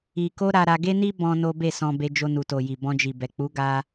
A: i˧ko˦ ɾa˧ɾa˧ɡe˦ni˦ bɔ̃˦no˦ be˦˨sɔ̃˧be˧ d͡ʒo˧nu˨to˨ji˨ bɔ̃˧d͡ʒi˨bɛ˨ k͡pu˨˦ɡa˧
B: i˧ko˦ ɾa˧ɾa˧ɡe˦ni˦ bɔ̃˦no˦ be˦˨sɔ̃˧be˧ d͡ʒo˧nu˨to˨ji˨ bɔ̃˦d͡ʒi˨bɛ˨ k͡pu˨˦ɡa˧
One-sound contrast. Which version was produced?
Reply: A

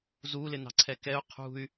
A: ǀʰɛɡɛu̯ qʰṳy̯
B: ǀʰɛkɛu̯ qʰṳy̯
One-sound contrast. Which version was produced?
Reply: B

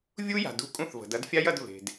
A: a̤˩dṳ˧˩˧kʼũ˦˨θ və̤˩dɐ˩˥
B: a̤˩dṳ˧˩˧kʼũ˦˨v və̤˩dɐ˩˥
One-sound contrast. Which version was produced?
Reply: A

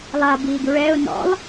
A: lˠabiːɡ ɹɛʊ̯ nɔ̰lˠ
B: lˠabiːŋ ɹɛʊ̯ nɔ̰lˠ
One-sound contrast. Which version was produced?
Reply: A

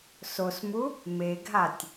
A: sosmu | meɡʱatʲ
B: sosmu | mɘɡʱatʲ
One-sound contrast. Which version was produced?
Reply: A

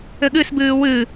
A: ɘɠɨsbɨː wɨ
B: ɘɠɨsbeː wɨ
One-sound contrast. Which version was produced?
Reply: A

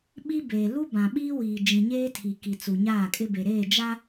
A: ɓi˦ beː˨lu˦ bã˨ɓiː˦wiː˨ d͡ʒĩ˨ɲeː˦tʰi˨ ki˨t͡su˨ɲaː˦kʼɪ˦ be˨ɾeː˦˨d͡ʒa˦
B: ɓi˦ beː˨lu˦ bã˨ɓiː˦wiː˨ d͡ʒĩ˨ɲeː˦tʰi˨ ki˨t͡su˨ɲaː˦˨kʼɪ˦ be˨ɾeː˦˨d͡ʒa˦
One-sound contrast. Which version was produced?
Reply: B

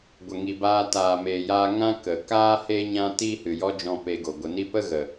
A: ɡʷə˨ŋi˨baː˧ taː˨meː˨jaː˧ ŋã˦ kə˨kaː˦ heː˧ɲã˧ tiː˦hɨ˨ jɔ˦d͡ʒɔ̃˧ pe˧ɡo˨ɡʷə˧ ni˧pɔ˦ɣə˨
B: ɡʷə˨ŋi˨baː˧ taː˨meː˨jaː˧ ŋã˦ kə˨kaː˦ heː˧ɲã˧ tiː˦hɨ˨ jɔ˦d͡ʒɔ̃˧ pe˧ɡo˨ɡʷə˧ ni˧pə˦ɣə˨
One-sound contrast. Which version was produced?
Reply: B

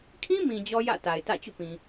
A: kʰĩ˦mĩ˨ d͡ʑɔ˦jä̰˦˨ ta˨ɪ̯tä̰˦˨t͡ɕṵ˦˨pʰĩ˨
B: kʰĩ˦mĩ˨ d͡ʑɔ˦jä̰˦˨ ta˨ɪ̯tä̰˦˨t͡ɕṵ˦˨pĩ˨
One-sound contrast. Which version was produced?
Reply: B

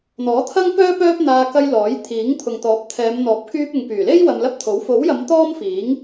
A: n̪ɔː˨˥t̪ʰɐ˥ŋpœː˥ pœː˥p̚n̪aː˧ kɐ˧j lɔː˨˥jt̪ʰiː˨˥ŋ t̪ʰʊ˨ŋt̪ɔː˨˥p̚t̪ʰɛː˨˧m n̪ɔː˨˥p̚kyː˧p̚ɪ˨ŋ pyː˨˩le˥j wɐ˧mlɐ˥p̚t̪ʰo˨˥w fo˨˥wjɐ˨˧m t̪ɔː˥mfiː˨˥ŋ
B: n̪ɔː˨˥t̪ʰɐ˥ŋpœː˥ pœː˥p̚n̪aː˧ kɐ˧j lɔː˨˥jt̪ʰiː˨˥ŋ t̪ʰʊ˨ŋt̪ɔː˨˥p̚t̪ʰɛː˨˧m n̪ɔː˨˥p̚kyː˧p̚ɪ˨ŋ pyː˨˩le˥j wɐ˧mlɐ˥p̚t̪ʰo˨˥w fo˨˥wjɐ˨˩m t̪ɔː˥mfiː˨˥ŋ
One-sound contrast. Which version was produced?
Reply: A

